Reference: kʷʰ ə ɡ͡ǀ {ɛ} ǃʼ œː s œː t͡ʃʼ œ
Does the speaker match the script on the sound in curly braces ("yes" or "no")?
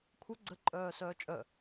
no